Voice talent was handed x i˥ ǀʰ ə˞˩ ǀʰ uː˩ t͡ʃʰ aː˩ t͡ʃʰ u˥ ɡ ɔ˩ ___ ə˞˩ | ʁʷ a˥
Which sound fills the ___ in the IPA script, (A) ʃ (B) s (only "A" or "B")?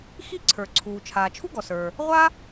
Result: B